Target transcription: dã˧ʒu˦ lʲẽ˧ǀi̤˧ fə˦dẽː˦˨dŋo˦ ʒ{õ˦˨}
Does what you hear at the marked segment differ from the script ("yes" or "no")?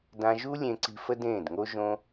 yes